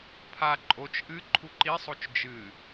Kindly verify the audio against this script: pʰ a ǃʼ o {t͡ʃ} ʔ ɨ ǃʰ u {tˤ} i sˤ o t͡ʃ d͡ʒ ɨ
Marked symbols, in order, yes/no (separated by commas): yes, no